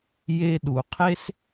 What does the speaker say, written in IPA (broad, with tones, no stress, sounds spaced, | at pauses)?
j e˧ ɗ u˨ qʰ e˦ s